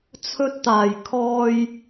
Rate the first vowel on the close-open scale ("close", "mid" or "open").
mid